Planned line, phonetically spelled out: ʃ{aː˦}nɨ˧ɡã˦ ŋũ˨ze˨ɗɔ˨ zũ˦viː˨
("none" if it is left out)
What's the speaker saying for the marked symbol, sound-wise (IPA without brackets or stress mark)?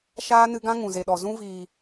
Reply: aː˦